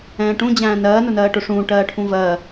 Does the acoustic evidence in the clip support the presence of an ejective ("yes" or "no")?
no